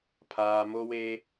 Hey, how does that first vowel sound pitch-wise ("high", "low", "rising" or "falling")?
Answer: low